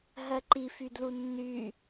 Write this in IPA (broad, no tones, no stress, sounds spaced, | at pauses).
ɦ ɜ ǃ i f y d l u nː y